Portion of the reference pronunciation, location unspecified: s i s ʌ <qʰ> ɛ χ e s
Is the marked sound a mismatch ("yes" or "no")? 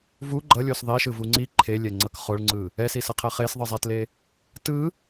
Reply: no